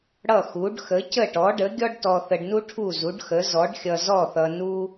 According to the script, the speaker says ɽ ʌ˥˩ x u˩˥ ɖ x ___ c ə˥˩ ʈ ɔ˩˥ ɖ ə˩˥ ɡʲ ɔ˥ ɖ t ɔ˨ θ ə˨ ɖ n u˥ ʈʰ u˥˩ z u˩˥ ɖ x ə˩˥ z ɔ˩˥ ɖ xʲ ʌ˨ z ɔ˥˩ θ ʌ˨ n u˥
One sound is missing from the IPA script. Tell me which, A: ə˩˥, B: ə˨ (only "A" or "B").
A